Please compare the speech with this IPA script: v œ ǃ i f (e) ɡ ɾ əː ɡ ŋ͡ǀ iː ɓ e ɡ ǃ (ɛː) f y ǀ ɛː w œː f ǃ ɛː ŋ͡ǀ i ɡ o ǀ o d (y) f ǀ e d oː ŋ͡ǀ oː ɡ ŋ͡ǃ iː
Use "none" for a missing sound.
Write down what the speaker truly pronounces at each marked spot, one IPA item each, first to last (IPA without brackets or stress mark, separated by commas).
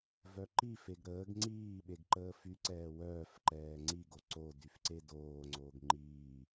e, əː, y